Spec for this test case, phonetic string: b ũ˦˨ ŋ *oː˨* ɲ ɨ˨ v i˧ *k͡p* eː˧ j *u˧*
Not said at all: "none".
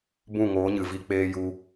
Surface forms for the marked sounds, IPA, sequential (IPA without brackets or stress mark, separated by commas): oː˨˦, k͡p, u˧